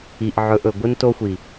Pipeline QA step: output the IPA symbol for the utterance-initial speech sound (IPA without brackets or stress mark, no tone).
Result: i